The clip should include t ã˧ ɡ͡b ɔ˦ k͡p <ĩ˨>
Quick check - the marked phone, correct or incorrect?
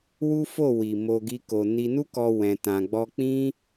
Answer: incorrect